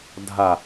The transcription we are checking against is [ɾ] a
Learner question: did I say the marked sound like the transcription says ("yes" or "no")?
no